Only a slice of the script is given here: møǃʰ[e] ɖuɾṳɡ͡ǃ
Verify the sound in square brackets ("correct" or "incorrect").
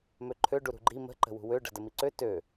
incorrect